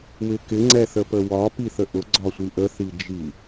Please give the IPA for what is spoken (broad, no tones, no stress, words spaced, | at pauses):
wɪkɪ ŋ͡ǀɛθəpəwɒ piθəʔʊ ɡ͡ǀɒsʷiʔə θid͡ʒi